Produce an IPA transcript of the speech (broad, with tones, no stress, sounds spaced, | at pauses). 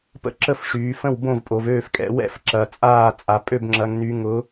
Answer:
p ə̰˥˩ ǁ ə˥˩ f ʂ yː˩˧ f ə̃˥˩ w b õ˥˩ v pʼ o˩˧ v øː˥˩ f kʼ ɛ̰˩˧ w ɛ̰˥˩ f ǁ ɐ˩˧ t͡sʼ aː˥˩ t͡sʼ a˩˧ pʼ ø˥˩ b ŋ͡ǁ ɐ˩˧ ŋ n y˩˧ ŋ ʊ˩˧